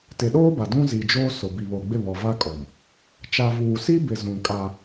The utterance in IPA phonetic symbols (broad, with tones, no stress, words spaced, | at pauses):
tɪ˨ɗoː˦ba˨ dũ˦zi˨d͡ʒoː˦ sʊ˨bi˨βo˨ɡ͡bɪ˦˨ βɔ˨va˦kʼɔ˨m | t͡ʃa˨vuː˨si˦bɪ˨ zũ˨ kʼa˦